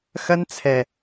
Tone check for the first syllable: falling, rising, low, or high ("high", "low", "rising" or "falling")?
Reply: high